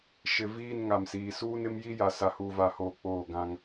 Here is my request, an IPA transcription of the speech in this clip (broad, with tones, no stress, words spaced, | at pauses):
ʃɪ˨viː˦˨n ŋa˨msiː˨ suː˦nɪ˦mji˦ja˨ sa˦huː˦va˦hoː˦ k͡poː˦˨ɡã˦ŋ